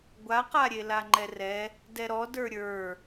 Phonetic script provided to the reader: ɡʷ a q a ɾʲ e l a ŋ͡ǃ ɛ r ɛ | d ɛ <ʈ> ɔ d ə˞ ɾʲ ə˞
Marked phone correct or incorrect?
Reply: incorrect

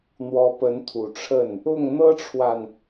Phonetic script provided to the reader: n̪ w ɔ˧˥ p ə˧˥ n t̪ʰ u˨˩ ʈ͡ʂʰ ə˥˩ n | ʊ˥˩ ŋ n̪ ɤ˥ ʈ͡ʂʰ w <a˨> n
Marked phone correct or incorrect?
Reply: correct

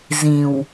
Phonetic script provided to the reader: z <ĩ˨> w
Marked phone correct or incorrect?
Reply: correct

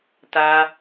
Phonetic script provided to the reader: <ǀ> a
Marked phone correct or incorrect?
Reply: incorrect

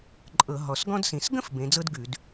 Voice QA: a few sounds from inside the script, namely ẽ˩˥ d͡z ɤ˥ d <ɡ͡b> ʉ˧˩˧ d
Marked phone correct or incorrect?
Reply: incorrect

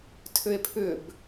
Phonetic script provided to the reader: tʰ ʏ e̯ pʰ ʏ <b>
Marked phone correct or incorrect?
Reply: correct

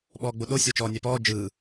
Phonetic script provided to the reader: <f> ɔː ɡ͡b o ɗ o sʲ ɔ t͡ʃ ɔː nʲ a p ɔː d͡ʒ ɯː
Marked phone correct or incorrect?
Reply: incorrect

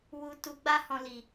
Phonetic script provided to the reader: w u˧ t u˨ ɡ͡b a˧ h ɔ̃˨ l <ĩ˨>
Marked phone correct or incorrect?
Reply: incorrect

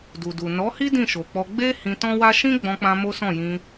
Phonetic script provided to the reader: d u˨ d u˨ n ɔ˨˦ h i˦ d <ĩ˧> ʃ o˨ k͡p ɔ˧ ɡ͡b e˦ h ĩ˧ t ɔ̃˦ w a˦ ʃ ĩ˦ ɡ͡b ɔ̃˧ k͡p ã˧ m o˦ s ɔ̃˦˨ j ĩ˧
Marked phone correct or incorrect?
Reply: incorrect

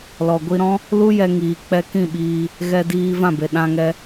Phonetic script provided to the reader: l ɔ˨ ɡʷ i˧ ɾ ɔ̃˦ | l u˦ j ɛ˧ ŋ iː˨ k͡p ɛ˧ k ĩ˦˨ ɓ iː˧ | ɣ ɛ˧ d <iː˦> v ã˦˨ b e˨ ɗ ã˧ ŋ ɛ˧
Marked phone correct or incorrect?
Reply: incorrect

